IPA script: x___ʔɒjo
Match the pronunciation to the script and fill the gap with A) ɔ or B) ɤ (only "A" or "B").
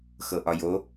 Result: B